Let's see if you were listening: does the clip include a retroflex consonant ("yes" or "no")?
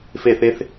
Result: no